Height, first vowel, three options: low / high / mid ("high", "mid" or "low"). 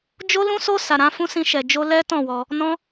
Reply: mid